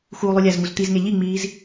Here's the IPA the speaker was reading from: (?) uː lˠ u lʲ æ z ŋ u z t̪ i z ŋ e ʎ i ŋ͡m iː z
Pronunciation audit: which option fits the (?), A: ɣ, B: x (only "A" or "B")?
B